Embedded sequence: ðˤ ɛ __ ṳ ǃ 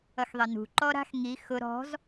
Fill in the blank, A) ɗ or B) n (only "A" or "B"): B